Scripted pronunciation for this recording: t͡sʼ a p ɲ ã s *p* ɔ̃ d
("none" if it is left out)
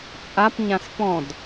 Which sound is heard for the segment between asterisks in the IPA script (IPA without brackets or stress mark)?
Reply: p